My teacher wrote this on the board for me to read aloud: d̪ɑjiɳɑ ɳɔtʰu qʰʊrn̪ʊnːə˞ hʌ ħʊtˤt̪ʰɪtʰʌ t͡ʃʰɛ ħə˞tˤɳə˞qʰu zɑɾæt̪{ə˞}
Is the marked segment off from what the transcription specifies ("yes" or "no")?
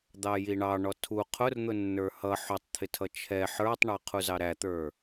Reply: no